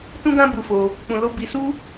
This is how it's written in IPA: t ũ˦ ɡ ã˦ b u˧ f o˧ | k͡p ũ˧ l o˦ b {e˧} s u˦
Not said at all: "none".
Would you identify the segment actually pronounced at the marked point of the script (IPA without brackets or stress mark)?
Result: i˧